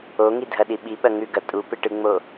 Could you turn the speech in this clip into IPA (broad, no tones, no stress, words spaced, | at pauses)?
oŋidʱɐɗi ɓiɓɐ ŋʉɡɐ tʼupɨʈɨŋ͡mo